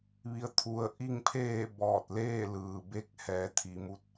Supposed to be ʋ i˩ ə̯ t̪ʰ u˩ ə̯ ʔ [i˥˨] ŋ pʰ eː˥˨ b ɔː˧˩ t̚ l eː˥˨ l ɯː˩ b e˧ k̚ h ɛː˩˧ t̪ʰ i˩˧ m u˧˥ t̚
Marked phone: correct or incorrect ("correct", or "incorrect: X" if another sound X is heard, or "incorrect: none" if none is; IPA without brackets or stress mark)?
correct